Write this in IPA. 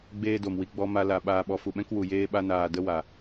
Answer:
ɡ͡b eː˦ d o˨ m w i˨˦ ɡ͡b ɔ˧ m a˧ l a˨ ɓ aː˨ ɓ ɔ˨ f u˨ ɓ ɛ̃˦ k w u˨ j eː˧ ɓ a˦ n aː˨ d ə˦ w a˨

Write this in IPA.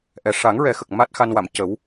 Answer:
ʔ ɛ˨˩ ʂ a˨˩˦ ŋ ɹ ɛ˨˩˦ x ə˨˩ k̚ m a˦˥ t̚ x a˧ n w a˨˩˨ m c ə˨˩˦ w

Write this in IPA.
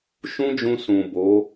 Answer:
ʃ ũ˦ d͡ʒ ũ˧ s ũ˨ b o˨˦

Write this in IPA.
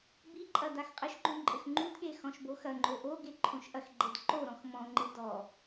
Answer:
b i ǃʼ ɐ d a x qʼ ɘ ʃ ɡ͡ǃ õ ǃʼ ɘ x ŋ͡ǃ u d ɠ e x ɔ̃ ʃ b o x ɐ ŋ͡ǃ o ʔ o ɡ e ǃʰ õ ʃ ʔ ɐ x ɡ͡ǃ e d ǃ o ɾ ɔ̃ x m ɔ̃ ŋ͡ǃ ɨ d ɔ

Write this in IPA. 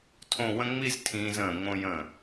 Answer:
tʰ õ˥˧ w ə̃˥ ŋ͡m i˥˧ z tʰ ĩː˧ z ə̃ː˧˩ ŋ õ˧ j ə̃˧˩

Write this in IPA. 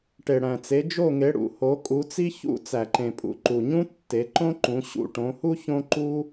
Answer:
ʈ e˩ ɽ æ̃˩ t͡s e˩˧ d͡ʒ o˧˩ ŋ e˩˧ ɽ ṵ˩ h o˩˧ kʼ u˩˧ t͡s i˦ ç ṵ˦ t͡s æ˩ ǃ ẽ˩ pʼ ṵ˩ ǃ u˩ ɲ ũ˦ tː e˩˧ ǃ õ˦ ǃ ũ˩˧ ɕ ṵ˧˩ ʈ õ˩˧ h u˦ ç õ˦ ǃ u˦

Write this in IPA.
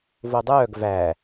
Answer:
v o dˤ œː ɡ v æ

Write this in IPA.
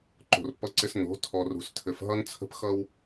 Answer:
ǃ o̤˨ r pː ʌ˦ ǀ ɪ˦ s n o̤˨˦ tʰ ɔ˨ r ṳ˨ s tʰ ɘ˨ f ɦ ʌ˦ n t͡sʰ ə̤˦ p x ʌ˦ w

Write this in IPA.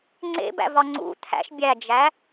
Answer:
ŋ͡ǀ ḛ b æ̰ v ɒ ŋ͡ǀ ṵ t̪ʰ æ̰ ʃ bʲ æ d͡ʒ æ

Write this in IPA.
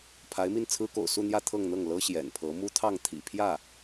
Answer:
pʰ a˧˥ ɪ̯ m i˥˩ n t͡sʰ ɹ̩˥ k o̰˨˩ ʊ̯ s u˥˧ n̪ j ä˥˧ t̪ʰ ɤ˥˧ ŋ n̪ ɤ˥˩ ŋ l ɤ˥ ɕ j ɛ̰˨˩ n pʰ ɤ˧˥ m u˥ t̪ʰ ɑ˥˩ ŋ t̪ʰ ḭ˨˩ pʰ j ä˥˩

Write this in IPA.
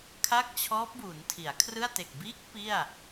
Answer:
kʰ a˥˩ k̚ t͡ɕʰ ɔː˦˥ p̚ b u˩˦ n tʰ i˩˦ a̯ kʰ r ɯ˥˩ a̯ t e˨˩ k̚ b iː˦˥ k̚ p i˥˩ a̯

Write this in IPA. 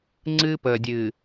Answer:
ŋ͡ǀ ɨː˦ p əː˨ dʲ ɨː˨

